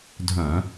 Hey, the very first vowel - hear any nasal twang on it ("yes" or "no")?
yes